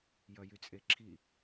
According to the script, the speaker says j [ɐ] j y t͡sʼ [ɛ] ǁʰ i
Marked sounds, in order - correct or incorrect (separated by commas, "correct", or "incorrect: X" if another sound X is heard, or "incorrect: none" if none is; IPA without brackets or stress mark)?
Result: correct, incorrect: e